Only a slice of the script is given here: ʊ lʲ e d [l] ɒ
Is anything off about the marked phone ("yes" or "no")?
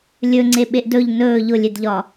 yes